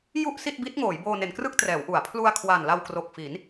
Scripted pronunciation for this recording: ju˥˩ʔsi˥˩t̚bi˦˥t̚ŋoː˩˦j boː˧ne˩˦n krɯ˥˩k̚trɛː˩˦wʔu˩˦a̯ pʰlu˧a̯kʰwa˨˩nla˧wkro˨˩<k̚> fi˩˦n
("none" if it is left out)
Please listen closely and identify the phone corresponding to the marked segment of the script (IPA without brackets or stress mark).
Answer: k̚